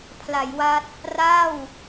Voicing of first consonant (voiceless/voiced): voiceless